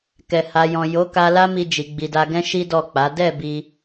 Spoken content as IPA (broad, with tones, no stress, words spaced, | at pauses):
kɛ˨ ha˨ jɔ̃˨jo˨˦ ka˧la˦mi˧ d͡ʒi˨ɡ͡bi˨da˧ɡɛ̃˦ ʃi˦ dɔ˦˨k͡pa˨˦ dɛ˦˨ bi˧